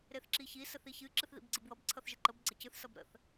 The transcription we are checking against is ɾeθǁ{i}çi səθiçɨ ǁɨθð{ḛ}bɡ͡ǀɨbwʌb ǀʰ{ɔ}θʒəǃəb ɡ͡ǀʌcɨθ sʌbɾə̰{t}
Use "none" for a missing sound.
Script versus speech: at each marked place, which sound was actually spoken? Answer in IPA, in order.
i, ḭ, ʌ, θ

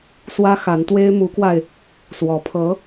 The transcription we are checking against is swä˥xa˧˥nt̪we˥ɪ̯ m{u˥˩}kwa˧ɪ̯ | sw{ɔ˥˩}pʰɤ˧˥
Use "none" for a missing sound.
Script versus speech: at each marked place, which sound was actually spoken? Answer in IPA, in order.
u˧˥, ɔ˧˥

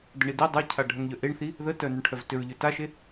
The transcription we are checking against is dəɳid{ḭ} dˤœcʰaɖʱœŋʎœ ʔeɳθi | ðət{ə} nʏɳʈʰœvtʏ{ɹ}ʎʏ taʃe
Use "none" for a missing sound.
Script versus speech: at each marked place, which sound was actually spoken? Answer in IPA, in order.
i, œ, ɹ

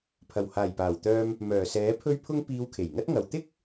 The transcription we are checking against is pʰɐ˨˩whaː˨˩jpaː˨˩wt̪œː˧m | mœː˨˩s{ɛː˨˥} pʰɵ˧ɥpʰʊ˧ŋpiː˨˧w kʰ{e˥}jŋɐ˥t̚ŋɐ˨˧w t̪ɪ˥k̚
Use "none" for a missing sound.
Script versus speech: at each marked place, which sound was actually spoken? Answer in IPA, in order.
ɛː˨˥, e˨˩

